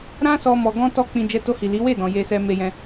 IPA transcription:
ɾ ã˦ s ɔ˧ m ɔ˧ ɡ ɔ̃˦ t ɔ˦ k͡p ĩ˧ d͡ʒ ɛ˧ t o˧ h i˨ l i˨˦ w e˦˨ d ɔ̃˨ j e˧ s ɛ˧ m e˧ j ɛ̃˧

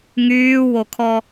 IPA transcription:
ŋ yː w o kʰ ɔ

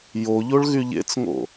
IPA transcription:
j o ʎ o ɭ ɣ y ʎ ḛ t͡s ŋ o̰

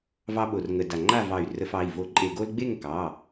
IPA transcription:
v ɑ˥ ɓ o˧˩˧ r ŋ ə˧˩˧ d a˧˩ ŋ͡ǃ a˥˨ v ɑ˧˩ y̯ r ə˧˩˧ f ɑ˩˧˩ i̯ v o˧˩˧ ǃʼ e˧˩˧ ɡ o˥ l ɡ͡b e˥˨ ŋ k ɑ˩˧˩

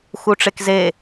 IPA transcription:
x u ʈ͡ʂ e k z e

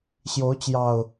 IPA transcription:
ɕ j o˨˦ ʊ̯ t͡ɕ j ɑ˨˩ ʊ̯

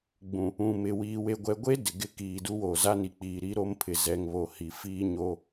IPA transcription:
ɡ͡b ũ˨ | ũ˨ m ɪ˨ w iː˨ w e˨ ɡʷ ɛ˨ ɡʷ e˦ d ɪ˨ ɡ ɪ˦˨ k iː˨ d u˦ w oː˨ z a˦ n i˨ k͡p iː˨ ɾ i˦ ɾ o˦ m pʰ ɪ˨ z ɛ˨ ŋ β o˨ h i˨ f iː˦ ɲ o˦

